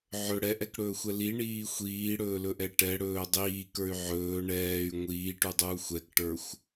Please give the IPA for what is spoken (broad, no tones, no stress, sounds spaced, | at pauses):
ʕ ɵ ɽ ɛ ʔ ɛ k ɽ ɵː xʷ ɛ l i ɳ iː xʷ iː ɽ ɵː l ɵ ʔ ɛ ʈ ɛ ɽ ɵː dˤ iː k ə˞ y̯ ʕ ɵː ɳ ɛː y̯ ŋʷ iː ʈ u dˤ uː xʷ ɛ k ʈ ə˞ xʷ